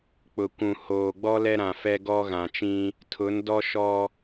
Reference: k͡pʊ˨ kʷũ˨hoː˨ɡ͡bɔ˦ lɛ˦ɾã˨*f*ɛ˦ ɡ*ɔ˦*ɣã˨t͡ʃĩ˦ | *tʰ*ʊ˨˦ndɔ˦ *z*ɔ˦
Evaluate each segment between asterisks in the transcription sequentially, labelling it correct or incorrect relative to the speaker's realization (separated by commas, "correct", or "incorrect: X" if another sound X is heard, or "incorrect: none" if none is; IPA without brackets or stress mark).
correct, correct, correct, incorrect: ʃ